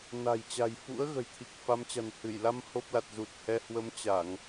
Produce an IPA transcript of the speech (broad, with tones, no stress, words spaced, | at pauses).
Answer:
na̤˨˩jt͡ɕa̤˨˩j fṵ˧˥ə̯ ɣə̤˨˩jt̪ʰi˨˩k̚fa˨˦mt͡ɕa̤˨˩n hɨ˧˩jla˧m ho˦˥p̚la˨˩t̚ zu˨˩t̚hɛ˧ hwə˨˦mt͡ɕa˧˩˨ŋ